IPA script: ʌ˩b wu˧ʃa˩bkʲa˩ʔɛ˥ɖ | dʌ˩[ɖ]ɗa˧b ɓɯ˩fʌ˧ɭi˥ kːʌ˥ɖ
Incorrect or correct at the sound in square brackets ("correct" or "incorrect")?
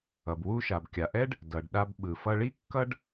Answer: correct